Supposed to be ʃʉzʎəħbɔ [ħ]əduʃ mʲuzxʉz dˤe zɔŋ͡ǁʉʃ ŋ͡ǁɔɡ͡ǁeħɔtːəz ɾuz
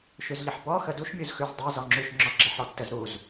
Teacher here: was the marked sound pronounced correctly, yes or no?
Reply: no